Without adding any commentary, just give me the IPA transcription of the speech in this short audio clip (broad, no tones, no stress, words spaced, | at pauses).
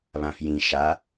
βãfjĩ ʃa